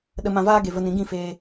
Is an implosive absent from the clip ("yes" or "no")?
no